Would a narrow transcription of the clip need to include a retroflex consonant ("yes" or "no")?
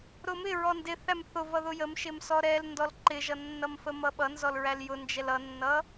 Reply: no